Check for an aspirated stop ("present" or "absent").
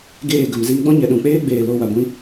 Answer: absent